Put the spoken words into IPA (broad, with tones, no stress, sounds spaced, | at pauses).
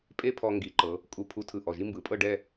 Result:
pʼ e˥ pʰ ɔ˧ ŋ ɡ i˩˧ ǃ ɤ˩˧ | kʼ u˧ pʰ u˧ tʰ ɯ˧˩ ʔ ɔ˧˩ ʒ i˥ m b ɯ˩˧ pʼ ɤ˥˧ ɖ ɛ˥˧